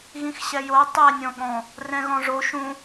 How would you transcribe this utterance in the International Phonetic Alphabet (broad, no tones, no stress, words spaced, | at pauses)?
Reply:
ɣĩxɕɛjo tˤɛ nʲɔ̃ɠɔ̃ | rɛ̃ɣɔ̃ʐo ʃũ